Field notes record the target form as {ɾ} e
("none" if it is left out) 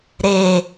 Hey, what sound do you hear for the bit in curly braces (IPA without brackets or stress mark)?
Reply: ɾ